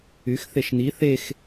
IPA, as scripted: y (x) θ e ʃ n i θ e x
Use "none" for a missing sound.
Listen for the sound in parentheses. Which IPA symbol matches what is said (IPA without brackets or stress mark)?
x